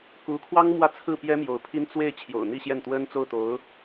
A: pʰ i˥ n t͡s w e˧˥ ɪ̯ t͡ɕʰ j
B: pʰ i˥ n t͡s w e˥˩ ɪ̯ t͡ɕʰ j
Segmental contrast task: B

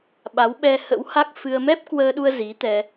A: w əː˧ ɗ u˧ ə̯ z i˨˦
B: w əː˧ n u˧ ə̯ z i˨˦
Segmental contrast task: A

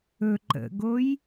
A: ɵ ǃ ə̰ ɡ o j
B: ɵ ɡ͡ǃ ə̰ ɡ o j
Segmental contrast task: A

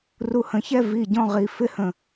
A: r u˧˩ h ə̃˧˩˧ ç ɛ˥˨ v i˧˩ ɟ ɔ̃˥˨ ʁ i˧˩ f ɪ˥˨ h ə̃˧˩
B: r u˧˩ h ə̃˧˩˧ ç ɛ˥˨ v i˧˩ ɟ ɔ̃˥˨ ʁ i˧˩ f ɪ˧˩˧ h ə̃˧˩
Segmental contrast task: A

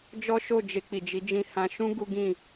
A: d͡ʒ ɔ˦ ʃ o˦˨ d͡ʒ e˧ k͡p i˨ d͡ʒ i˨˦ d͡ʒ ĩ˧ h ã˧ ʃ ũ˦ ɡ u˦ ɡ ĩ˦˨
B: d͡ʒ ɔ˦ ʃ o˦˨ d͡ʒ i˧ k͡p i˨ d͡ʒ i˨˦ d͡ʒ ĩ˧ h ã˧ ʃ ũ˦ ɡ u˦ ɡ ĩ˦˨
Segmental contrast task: A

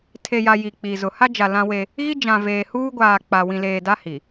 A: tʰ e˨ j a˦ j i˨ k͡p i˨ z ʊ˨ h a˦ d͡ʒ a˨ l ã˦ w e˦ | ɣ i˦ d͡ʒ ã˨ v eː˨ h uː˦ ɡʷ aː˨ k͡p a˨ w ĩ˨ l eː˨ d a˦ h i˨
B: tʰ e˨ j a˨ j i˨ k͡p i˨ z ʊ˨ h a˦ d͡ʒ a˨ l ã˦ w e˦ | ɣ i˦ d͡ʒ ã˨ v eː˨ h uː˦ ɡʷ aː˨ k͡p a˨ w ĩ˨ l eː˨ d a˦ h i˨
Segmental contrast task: B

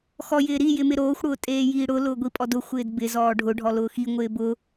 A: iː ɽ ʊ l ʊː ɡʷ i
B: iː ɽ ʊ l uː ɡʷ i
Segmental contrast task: A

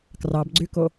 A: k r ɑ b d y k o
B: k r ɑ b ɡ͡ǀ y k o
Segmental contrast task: B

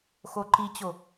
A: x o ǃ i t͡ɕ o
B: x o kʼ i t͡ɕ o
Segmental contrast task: A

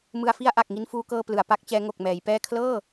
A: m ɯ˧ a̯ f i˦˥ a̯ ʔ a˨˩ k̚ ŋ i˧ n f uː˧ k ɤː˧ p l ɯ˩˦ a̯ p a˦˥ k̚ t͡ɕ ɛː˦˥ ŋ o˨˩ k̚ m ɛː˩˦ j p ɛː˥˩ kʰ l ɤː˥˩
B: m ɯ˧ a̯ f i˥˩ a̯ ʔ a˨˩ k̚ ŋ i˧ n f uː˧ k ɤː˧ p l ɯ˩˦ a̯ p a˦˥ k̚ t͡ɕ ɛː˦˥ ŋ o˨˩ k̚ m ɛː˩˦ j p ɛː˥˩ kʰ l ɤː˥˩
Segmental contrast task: B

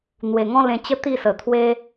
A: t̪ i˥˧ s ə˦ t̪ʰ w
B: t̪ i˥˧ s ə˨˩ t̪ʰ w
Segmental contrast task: B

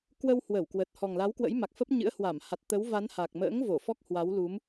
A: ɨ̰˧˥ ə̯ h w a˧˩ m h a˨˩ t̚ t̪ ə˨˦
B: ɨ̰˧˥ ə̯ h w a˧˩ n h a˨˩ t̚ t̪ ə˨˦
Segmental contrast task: A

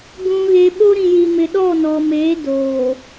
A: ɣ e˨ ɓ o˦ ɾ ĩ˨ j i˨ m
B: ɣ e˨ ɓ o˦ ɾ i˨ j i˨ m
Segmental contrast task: A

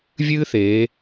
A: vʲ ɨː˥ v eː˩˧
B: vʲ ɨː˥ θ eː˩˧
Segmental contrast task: B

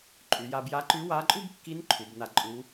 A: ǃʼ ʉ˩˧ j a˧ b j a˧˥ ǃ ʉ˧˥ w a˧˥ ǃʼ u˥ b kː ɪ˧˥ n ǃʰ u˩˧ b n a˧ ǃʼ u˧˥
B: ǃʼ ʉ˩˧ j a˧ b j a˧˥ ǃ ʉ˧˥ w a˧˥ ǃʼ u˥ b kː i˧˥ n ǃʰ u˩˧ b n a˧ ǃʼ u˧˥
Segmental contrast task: B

